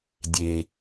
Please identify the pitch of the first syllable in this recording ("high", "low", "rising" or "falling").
low